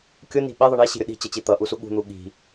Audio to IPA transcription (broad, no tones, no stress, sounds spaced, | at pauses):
kʲ ʊ n i̤ ɓ e ðˤ ə ɳ e ɕ i̤ ɾʲ ʊ ɗ i̤ t͡ɕ ə t͡ɕ i t̪ ʌ ʔ u s u ɠ ṳ n̪ u ɠ i̤